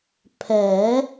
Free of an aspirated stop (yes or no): no